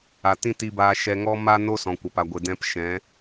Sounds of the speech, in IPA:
a˨ t ĩ˦ t i˧ b aː˧ ʃ ɛ˧ ŋ ɔ˦ m a˦ n o˦ s ɔ̃˨ kʷ a˨ p a˨ ɡʷ e˨ d ɛ̃˧ p ʃ ɛ̃˨˦

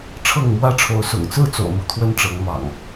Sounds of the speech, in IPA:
ʈ͡ʂʰ ɤ˥˨ ŋ m w ä˦ ʈ͡ʂʰ o˨˦ ʊ̯ s ʊ̰˨˩ ŋ t͡s ɹ̩˥˨ t͡s o̰˨˩ ʊ̯ m u˦ t̪ʰ w ə˦ n ʈ͡ʂ ɤ˨˦ ŋ m ɑ̰˨˩ ŋ

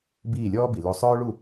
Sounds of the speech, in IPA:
b iː˦˨ lʲ ɔː˦ b i˨ l o˧ sˤ œː˦ ɭ u˦˨

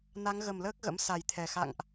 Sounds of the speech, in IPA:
n a˨˦ ŋ ɣ ə˨˩ m l əː˦˥ k̚ ɣ ə̰˧˥ m s a˨˩ j t̪ʰ ɛ˨˩ x a̰˧˨ ŋ ʔ

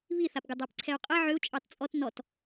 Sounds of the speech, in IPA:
β i θ a p ɡ u dˤ a p ǀʰ ɛ u̯ qʼ ɛ ʕ ʏ u̯ t͡ʃʼ ɑ t t͡sʼ ɔ t n ɔ t

